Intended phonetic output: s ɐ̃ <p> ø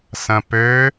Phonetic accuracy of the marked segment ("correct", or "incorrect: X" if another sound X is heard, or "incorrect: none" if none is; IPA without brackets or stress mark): correct